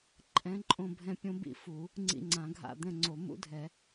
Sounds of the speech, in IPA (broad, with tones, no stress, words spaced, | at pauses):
ǃʼɛ̃˧˥ǃʼõ˦˨bʱɛ̃˦˨ pʲõ˧˥bḭ˦˨fu˨˩˦ | ŋ͡ǀḭ˦˨ŋ͡ǀã˨˩˦ɡʱa̰˦˨ d̪ɛ̃˦˨ŋ͡ǀo˨˩˦ mṵ˧˥dʱɛ˨˩˦